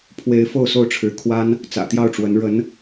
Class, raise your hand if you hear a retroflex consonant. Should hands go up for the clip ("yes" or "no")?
yes